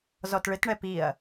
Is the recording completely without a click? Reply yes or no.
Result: yes